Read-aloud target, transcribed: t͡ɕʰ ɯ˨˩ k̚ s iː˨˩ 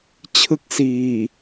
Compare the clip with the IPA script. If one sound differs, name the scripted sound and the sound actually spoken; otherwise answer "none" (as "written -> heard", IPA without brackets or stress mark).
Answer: ɯ˨˩ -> ɯ˦˥